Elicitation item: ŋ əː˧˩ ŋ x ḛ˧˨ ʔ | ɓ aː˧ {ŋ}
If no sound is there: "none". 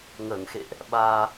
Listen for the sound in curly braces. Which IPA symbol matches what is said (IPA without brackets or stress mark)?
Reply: none